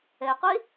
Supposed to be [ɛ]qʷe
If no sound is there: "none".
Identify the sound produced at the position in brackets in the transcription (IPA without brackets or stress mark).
ɛ